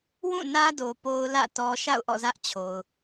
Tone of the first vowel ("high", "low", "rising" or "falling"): falling